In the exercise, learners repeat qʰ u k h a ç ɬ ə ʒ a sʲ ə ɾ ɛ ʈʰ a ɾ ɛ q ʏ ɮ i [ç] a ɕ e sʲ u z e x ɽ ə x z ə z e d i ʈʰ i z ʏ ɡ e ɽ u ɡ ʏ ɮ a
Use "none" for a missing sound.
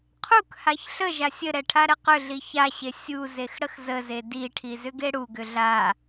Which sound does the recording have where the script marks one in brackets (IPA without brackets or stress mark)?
ç